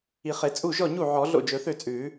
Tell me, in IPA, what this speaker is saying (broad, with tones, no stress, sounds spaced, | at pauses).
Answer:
i˨˩˦ χ e˨˩˦ t͡sʼ u˥˩ ʒ ɔ˥˩ ɲ u˥˩ ʕ ɔ˨˩˦ ɮ o̰˥˩ d͡ʒ ɵ˨˩˦ θ ø˥˩ t͡sʼ ʉː˨˩˦